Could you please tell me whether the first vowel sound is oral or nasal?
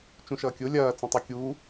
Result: nasal